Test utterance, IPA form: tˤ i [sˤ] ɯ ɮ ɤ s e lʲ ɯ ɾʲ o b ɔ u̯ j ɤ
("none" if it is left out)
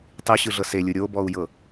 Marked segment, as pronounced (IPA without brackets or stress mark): ɕ